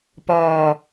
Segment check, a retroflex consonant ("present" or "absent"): absent